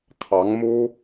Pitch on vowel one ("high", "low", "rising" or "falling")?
rising